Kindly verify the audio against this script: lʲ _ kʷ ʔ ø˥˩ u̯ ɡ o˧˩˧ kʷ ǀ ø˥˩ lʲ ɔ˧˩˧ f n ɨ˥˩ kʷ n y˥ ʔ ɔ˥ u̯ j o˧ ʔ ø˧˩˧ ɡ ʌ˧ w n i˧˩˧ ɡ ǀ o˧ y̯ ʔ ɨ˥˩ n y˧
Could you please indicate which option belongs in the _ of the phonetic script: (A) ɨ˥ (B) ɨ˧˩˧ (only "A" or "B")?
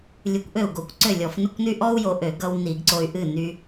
B